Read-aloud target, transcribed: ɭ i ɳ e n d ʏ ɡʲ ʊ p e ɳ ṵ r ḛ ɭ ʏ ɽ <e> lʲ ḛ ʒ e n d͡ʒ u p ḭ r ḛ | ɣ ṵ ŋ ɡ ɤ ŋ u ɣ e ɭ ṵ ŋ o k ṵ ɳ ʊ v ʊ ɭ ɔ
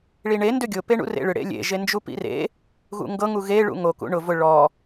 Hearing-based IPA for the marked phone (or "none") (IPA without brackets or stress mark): ḛ